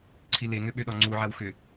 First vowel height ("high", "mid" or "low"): high